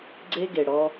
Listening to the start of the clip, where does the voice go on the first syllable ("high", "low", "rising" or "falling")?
high